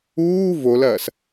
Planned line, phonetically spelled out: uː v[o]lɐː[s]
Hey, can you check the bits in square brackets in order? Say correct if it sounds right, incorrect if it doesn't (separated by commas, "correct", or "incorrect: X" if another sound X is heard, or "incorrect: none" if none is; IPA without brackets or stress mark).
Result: correct, correct